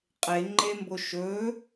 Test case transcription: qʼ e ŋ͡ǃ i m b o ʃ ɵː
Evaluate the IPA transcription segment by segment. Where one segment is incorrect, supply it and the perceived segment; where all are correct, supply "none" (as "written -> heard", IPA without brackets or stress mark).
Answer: i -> e